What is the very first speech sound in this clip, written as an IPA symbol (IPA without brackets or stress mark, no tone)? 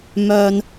m